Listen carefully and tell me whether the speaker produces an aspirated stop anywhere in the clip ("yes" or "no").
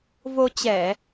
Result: no